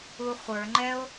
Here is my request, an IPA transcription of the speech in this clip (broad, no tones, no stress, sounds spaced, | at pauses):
u χʷ ə˞ ŋ͡ǃ ɛ o̯